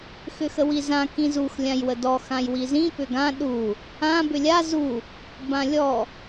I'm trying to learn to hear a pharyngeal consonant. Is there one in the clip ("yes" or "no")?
no